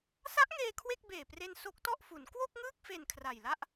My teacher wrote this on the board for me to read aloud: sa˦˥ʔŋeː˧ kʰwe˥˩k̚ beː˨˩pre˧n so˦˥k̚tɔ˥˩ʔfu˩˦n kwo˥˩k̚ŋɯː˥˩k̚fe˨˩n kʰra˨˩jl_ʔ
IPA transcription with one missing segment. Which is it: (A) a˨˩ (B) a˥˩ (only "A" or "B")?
B